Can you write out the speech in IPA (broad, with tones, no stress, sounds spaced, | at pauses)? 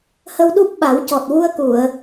h ə˧ w ɗ u˦˥ p̚ ɓ a˨˩˦ w c ɔ˨˩ t̚ w u˧ ə̯ k u˨˩˨ ə̯